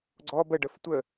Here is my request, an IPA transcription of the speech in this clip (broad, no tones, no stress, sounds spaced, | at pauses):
ɡ͡ǀ ɔ b ə ɖ ə f tʷ ə